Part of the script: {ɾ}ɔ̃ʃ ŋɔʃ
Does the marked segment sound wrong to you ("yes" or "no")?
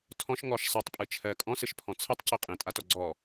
yes